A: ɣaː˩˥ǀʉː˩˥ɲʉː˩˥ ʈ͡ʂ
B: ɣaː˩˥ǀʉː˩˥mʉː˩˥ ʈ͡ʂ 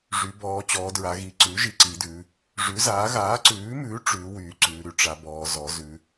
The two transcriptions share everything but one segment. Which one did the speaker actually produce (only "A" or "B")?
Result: B